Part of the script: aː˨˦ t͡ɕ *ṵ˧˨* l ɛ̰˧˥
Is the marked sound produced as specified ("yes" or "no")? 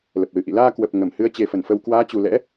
no